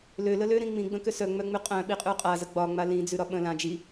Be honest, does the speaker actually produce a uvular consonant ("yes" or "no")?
yes